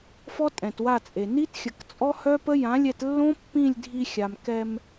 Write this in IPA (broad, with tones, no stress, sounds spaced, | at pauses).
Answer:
f ɔ˦ tʼ ɛ̃˨ t w a˦˨ t͡sʼ e˨ n i˦ t xʲ ə˨ k t͡sʼ ɔ˦ h œ˦ p ə˦ j ã˨˦ lʲ ɛ˧ t lː õ˦ pː ĩ˦˨ lʲ dʱ i˧ xʲ a˨ m k ɛ˧ m